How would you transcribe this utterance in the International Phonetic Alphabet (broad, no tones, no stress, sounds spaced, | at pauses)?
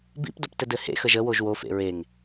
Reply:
b ḭ p d o p t ɘ d ɘ h ḛ x ə ʒ ə w o ʒ w o f ḛ ɹ e ŋ